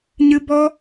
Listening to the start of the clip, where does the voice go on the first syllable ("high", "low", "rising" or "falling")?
high